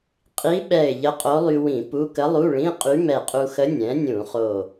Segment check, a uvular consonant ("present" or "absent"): present